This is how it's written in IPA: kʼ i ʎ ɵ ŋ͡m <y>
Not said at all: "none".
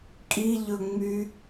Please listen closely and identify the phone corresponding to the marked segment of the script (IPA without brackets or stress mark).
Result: y